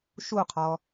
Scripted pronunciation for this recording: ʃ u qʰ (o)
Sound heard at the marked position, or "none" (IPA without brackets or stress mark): ɔ